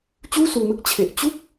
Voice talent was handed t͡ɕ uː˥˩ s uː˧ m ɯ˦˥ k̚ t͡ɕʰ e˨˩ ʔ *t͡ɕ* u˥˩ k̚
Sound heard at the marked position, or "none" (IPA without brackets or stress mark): t͡ɕ